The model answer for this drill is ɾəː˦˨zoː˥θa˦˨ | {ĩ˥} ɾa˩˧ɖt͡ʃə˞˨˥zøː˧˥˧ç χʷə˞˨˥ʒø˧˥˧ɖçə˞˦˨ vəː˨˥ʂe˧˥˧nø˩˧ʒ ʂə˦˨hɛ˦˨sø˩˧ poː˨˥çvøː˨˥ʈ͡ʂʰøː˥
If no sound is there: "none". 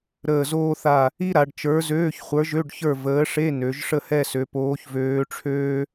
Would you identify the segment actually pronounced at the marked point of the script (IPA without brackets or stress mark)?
i˥